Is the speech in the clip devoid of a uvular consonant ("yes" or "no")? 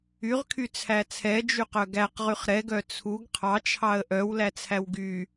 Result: no